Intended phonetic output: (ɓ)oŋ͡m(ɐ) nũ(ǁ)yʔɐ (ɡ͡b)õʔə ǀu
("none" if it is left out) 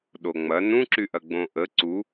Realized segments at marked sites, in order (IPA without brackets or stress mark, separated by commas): ɗ, ɐ, ǁ, ɡ͡b